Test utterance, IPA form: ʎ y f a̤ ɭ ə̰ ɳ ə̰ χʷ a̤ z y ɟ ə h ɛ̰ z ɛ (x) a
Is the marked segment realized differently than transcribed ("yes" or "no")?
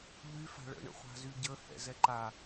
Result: yes